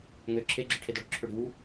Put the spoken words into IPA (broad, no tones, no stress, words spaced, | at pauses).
ŋø ǁʰeɡ͡ǁɯʈʰedɔ ɽʏǁʰøɽi̤wu